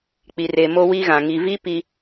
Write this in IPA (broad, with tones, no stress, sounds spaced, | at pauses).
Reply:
k͡p i˨ r e˨ m o˦ w i˦ ɣ ã˨ ŋ i˨ v i˦ p i˦